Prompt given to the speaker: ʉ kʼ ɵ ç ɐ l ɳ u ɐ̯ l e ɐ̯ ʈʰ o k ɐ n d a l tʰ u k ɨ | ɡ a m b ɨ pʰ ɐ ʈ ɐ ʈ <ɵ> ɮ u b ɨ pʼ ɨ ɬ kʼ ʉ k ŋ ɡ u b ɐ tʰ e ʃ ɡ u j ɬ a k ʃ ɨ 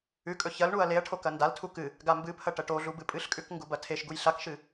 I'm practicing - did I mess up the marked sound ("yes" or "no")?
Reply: yes